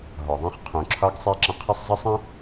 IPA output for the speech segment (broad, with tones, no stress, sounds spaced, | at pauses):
ɦ ɒ˨ ðˤ ẽ˦ χ qʰ ũ˨ ǁʰ ɒ˦ ɡ sˤ e˦ ǁ ə̃˦ qʰ ɪ˦ sˤ zˤ ə˦ sˤ ə̃˦